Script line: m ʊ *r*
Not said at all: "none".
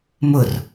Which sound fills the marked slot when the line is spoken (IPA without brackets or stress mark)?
r